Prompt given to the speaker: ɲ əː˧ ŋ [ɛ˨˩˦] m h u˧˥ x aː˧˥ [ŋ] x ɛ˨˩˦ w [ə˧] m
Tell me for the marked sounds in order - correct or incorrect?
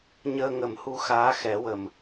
incorrect: ə˨˩˦, incorrect: none, incorrect: ə˨˩

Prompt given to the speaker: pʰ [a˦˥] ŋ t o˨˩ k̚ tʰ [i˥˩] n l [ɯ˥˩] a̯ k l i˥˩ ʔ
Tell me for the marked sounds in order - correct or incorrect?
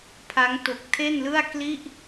correct, incorrect: e˥˩, correct

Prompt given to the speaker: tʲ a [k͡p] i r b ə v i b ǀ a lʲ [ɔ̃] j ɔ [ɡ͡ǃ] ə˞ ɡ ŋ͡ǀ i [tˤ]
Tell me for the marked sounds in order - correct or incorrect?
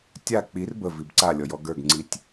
correct, incorrect: ɔ, incorrect: ɡ, incorrect: tʲ

